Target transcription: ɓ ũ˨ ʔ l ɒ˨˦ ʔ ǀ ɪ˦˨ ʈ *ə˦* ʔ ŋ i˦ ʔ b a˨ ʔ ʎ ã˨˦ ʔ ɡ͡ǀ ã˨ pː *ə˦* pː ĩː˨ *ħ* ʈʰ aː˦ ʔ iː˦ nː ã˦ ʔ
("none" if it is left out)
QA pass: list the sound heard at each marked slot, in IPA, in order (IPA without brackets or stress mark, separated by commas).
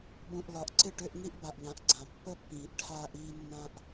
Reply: ʏ˦, ə˦, ʔ